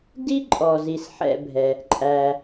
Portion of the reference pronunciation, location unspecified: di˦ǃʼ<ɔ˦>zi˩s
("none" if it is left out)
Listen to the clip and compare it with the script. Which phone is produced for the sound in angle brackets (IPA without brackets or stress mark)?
ɔ˩